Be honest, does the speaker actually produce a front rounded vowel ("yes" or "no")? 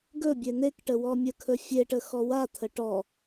no